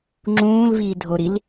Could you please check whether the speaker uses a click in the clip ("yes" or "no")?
yes